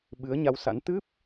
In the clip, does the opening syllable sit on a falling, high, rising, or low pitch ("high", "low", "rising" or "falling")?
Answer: rising